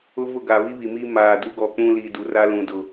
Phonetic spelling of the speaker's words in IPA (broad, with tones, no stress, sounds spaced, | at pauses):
ʊ˦ v ʊ˦˨ ɡ a˨ β i˦ β i˨ m i˦ m aː˨ d u˦ ɡ ɔ˨ k͡p ũ˦ l i˨ d u˨ r a˦ l ũ˨ d ʊ˨